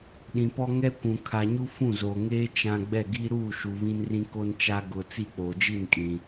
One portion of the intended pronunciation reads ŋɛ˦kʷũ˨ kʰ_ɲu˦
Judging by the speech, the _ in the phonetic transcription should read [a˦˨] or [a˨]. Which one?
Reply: a˨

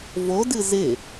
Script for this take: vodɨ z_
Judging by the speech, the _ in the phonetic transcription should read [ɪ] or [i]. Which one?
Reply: ɪ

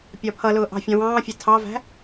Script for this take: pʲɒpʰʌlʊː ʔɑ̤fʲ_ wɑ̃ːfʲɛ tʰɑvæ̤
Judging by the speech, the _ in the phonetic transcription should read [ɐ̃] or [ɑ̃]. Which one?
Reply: ɑ̃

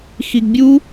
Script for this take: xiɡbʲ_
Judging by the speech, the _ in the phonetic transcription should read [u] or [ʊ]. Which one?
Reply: u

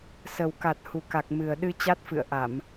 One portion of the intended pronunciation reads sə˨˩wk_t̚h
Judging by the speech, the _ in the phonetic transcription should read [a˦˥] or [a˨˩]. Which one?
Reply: a˨˩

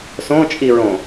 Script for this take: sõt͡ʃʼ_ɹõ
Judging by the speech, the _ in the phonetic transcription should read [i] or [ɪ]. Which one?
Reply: i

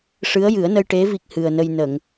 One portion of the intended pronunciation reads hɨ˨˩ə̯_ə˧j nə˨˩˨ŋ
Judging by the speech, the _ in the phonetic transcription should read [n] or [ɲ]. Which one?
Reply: n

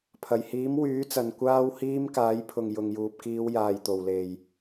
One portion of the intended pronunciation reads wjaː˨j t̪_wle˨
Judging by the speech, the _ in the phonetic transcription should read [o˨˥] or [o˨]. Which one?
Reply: o˨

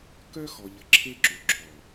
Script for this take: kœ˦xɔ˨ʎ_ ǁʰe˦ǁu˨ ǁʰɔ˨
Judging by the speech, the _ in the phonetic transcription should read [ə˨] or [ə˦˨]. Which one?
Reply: ə˨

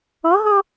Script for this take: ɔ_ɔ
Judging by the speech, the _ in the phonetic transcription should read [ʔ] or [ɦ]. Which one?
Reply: ɦ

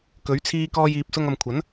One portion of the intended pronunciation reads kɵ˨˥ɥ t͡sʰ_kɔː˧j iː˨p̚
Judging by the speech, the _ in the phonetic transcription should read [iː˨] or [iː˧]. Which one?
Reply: iː˧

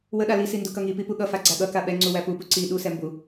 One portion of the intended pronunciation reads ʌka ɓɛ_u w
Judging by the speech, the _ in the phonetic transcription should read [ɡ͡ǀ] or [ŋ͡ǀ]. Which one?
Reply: ŋ͡ǀ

